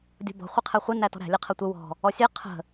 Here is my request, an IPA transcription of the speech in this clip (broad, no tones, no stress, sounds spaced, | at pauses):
dʲ ɔ̤ b ɔ̤ χʷ ɪ qʰ ɛ χʷ ɪ n æ t ɔ̤ ɾ æ̤ lʲ ɛ qʰ ɜ tʷ ɪ w ɔ̤ | ɔ sʲ ɛ qʰ ə̤